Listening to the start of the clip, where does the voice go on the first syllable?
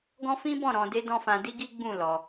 high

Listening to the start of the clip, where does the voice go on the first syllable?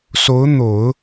rising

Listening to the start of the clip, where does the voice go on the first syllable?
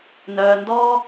low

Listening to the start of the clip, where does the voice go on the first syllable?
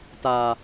low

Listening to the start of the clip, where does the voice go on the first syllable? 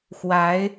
rising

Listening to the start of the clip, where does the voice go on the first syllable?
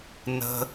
low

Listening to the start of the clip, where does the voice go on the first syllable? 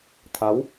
rising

